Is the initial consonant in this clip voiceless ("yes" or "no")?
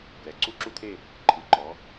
no